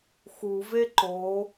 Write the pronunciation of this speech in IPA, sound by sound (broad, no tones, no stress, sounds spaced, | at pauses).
x u v e ǃ o